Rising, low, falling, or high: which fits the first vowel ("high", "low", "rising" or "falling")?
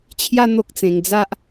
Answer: high